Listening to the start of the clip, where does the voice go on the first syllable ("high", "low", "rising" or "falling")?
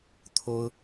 high